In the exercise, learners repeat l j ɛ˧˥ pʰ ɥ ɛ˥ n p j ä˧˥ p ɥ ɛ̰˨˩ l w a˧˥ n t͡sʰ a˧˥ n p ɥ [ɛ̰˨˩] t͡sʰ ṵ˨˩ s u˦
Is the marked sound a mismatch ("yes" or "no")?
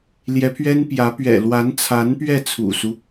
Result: yes